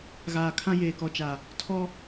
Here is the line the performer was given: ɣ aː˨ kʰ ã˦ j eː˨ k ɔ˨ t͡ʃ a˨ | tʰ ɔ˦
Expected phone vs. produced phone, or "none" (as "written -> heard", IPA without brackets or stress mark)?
none